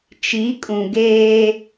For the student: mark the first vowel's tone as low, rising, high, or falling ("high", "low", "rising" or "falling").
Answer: rising